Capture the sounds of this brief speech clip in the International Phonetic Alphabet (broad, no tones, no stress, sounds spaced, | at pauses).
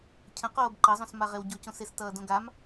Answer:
cʰ ə̃ q oː b ǃ ʌ zˤ õ s m a ʁ e w ɟ o c õ s e s t ʌː d õ ɡ a m